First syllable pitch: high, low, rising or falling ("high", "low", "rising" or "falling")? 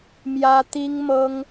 high